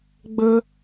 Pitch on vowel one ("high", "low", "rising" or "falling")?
high